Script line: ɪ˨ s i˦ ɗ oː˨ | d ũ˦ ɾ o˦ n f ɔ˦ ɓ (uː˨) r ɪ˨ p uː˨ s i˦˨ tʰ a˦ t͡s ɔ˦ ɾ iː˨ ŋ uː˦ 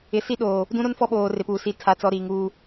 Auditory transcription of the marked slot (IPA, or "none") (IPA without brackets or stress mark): oː˨